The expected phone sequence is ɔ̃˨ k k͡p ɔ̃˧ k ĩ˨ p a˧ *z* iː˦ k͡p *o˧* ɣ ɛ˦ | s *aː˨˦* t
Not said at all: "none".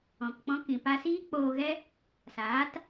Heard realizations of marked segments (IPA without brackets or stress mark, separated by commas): s, oː˧, aː˨˦